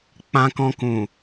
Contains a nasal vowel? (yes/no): yes